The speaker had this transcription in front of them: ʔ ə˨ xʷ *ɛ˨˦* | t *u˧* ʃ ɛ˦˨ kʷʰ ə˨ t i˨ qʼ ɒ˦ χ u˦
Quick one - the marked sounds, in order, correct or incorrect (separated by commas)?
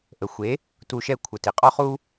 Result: incorrect, correct